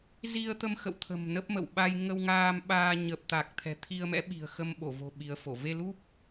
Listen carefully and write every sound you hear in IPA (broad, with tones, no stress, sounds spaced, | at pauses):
z i˧ ə̯ t̪ ə˧ m x ə̰˧˨ w t̪ʰ ə̤˨˩ m n ə˦˥ p̚ m ə̰˧˨ w ɓ a˧ j ŋ ə˧ w ŋ aː˧ m ɓ aː˧ ɲ ə˨˩ p̚ t̪ a˨˩ k̚ t̪ʰ ɛ̤˨˩ t̪ʰ i˧ ə̯ m ɛ̰˧˥ ɓ i̤˨˩ ə̯ x ə˧ m ɓ o˧˩ v o̤˨˩ ɓ i˨˦ ə̯ f o˧˩ v e˧ l u˦˥ p̚